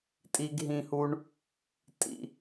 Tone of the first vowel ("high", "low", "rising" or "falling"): high